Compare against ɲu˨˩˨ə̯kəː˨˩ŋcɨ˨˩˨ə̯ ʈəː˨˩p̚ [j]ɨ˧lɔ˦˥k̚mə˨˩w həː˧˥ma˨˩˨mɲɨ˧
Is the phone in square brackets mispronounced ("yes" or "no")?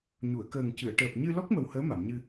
yes